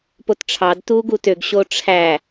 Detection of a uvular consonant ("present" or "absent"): absent